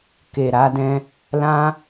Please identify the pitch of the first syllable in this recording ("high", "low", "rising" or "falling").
low